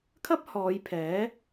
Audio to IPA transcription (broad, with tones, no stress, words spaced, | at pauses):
kʰɐ˥p̚hɔː˨˧j pʰɛː˨˥